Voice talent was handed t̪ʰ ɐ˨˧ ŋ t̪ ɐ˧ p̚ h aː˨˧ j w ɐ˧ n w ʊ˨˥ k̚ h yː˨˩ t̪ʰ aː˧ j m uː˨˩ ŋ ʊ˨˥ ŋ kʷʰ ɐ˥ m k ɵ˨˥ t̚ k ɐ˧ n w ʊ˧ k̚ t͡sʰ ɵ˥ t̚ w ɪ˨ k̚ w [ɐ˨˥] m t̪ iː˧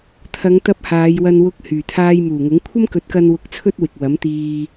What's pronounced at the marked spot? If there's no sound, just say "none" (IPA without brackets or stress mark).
ɐ˨˥